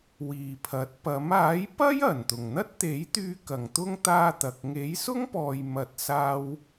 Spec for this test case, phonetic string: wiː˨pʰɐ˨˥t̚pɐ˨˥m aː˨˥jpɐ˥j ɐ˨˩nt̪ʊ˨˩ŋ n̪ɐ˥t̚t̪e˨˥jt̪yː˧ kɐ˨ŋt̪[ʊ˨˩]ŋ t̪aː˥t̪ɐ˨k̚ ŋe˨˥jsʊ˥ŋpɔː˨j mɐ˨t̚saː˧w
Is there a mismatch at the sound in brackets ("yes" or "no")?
yes